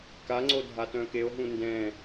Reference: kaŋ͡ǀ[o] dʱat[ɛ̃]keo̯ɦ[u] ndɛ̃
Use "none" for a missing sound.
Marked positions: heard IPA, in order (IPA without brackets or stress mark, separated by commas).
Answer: o, œ̃, ũ